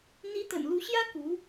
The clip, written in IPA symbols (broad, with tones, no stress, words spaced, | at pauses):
n̪i˧˥t̪ə̰˨˩nlu˧˥ɕjä˥ ku˧˥